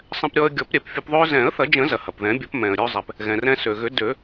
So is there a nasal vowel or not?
yes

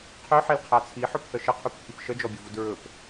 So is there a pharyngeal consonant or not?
yes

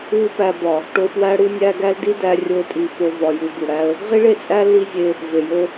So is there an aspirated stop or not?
no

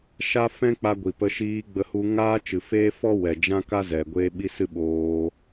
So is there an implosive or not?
yes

